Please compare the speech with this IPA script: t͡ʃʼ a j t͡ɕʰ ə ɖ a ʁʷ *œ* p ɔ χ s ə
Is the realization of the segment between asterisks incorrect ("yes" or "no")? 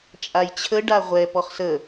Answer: yes